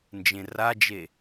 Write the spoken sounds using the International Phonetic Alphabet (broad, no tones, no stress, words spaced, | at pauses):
nd͡ʒẽrad͡ʒe